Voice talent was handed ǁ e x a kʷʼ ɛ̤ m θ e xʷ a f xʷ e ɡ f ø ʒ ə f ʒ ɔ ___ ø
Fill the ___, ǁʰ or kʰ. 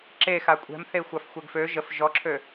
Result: ǁʰ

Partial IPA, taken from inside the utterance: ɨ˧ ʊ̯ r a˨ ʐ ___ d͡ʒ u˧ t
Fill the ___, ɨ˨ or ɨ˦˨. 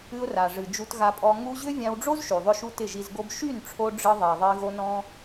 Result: ɨ˨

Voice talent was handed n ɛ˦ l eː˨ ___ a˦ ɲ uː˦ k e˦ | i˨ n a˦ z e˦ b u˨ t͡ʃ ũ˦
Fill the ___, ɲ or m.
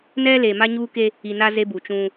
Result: m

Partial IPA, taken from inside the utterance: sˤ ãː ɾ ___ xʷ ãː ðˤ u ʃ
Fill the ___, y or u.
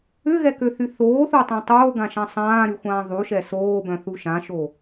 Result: y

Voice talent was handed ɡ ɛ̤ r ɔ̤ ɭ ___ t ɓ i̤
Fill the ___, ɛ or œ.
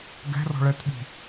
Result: ɛ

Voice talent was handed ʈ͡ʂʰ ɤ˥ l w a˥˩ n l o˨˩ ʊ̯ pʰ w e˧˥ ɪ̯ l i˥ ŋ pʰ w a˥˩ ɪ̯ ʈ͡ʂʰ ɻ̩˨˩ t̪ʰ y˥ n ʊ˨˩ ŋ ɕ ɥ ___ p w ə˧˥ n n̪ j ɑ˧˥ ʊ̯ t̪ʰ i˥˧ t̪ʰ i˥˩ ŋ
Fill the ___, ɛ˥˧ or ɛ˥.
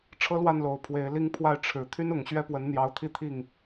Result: ɛ˥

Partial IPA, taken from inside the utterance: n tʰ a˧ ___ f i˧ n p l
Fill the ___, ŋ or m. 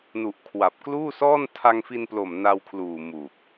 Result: ŋ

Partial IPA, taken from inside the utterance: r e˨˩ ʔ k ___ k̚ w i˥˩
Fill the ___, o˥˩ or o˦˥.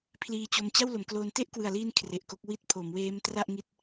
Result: o˦˥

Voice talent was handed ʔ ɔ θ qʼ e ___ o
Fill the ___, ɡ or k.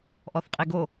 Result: ɡ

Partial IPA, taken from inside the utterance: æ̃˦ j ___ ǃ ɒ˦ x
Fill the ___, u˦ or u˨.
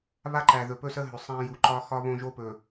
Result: u˨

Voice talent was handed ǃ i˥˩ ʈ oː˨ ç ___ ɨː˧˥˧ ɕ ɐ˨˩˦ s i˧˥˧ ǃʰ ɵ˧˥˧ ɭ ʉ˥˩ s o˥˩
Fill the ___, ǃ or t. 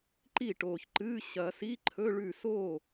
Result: ǃ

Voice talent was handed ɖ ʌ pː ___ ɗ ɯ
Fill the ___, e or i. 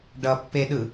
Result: e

